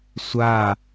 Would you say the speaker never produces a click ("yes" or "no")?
yes